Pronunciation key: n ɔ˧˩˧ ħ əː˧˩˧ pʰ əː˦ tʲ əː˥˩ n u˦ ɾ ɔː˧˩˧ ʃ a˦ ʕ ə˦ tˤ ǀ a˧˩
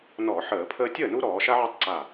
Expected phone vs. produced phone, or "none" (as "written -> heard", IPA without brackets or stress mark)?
none